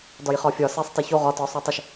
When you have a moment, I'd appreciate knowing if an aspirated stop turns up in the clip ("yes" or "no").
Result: no